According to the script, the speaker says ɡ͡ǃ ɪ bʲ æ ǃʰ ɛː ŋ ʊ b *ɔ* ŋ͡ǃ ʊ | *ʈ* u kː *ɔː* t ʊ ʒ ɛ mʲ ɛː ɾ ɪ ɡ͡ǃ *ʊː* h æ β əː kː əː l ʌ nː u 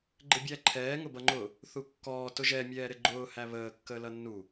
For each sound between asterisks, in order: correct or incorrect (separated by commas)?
incorrect, incorrect, correct, correct